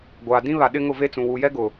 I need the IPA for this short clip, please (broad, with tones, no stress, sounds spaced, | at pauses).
ɡʷ aː˨ d ĩ˦ β a˨ ɗ ɪ˦ ŋ ʊ˦˨ v e˦ t͡s ũ˨ w u˨ j ɛ˦ ɡ ʊ˨